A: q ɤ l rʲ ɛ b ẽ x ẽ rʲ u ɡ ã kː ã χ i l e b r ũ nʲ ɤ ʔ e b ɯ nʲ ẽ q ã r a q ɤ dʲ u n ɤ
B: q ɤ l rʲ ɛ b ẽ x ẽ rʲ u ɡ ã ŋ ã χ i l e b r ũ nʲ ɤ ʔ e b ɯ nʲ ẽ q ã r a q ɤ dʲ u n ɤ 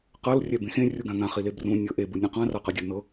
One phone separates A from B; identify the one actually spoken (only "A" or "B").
B